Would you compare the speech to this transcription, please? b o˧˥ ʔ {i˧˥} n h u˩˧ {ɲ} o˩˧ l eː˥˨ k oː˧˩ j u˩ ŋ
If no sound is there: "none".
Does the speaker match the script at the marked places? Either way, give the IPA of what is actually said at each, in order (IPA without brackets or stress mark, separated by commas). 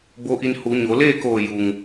i˧, ɲ